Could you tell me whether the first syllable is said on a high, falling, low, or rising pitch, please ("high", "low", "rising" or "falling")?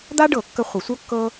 high